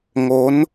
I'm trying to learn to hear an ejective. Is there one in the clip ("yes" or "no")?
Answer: no